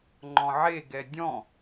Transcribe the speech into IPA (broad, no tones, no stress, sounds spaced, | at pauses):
ŋ͡ǃ ɔ̃ ʕ e ɡ ɛ dʲ ɔ̃